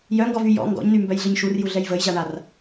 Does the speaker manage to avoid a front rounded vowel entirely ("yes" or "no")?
no